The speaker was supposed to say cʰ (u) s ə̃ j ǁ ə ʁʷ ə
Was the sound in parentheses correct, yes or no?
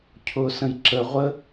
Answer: no